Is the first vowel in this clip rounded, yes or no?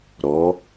yes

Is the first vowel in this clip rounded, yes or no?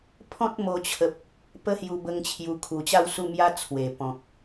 yes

